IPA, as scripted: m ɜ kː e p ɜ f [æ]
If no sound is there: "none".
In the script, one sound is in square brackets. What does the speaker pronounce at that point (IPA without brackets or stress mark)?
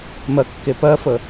ə